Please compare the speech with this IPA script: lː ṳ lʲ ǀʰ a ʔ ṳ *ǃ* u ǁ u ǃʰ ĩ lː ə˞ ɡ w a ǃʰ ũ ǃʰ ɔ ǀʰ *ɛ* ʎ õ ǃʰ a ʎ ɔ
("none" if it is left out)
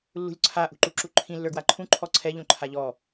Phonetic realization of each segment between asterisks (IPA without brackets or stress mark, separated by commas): ǃ, ɛ